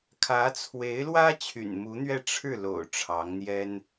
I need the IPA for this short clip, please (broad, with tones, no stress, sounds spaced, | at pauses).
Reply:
kʰ ä˧˥ t͡sʰ w e˧˥ ɪ̯ l w ä˥ t͡ɕʰ y̰˨˩ n m u˧˥ n̪ ɥ ɛ˥˧ ʈ͡ʂʰ ɻ̩˥˩ l o̰˨˩ ʊ̯ ʈ͡ʂʰ ɑ˧˥ ŋ n̪ j ɛ˥ n